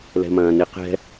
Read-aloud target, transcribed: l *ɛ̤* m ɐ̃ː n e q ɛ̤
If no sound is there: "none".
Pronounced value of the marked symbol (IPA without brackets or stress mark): ɛ̤